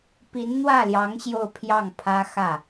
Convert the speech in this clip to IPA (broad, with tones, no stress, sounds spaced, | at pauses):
p i˧˥ n n̪ w ä˥˩ l j ɑ˧˥ ŋ ɕ j o˥˧ ʊ̯ pʰ j ɑ˥˩ ŋ pʰ ä˥ x ä˥˩